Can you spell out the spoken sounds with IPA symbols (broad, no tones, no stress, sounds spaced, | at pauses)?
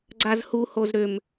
ɡ͡ǀ a z h u h o z ɾ ʏ m